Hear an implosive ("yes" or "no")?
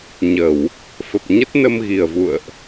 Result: no